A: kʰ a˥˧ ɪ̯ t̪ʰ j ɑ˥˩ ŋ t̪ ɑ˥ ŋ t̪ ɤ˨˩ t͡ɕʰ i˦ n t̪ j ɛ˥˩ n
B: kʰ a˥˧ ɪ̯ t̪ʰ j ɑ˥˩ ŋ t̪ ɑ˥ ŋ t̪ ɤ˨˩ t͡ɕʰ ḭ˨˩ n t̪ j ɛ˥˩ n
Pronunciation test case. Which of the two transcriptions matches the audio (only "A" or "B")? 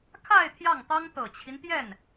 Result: A